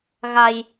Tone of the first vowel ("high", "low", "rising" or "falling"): low